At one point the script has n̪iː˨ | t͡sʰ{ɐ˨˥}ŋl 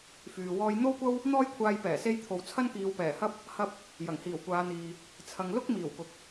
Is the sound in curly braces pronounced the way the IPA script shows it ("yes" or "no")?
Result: no